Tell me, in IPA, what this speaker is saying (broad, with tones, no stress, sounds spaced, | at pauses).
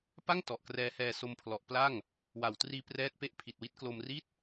p a˥˩ ŋ t ɔ˨˩ ʔ k r ɛː˦˥ h ɛː˧ s o˧ m pʰ l ɔ˨˩ ʔ p l a˥˩ ŋ | w a˨˩ w t r iː˧ p r ɛː˦˥ t̚ p e˦˥ ʔ pʰ i˨˩ t̚ w i˦˥ t̚ k l o˧ m r i˥˩ t̚